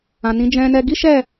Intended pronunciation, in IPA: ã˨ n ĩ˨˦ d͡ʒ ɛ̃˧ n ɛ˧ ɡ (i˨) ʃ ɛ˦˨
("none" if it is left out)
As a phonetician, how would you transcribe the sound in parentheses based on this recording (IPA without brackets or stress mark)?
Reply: i˦